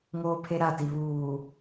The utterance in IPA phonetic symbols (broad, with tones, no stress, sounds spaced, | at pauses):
ŋ oː˦ pʰ e˦ ɾ a˦˨ t i˨ β uː˨